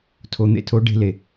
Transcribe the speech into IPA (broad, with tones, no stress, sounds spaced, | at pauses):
tʰ o˨ n̪ ḛ˧ tʰ o˨˦ ɖ e̤˧ l e˨